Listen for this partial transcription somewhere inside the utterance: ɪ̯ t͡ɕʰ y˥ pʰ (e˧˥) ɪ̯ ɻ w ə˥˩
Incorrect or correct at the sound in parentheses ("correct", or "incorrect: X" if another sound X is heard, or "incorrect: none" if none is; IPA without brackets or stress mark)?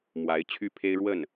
incorrect: e˥